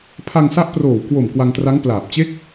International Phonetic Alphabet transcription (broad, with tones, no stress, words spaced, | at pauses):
pʰa˧ŋsa˦˥ʔproː˨˩w kwo˨˩m kwa˧ŋtra˦˥ŋ plaː˨˩p̚ t͡ɕe˦˥k̚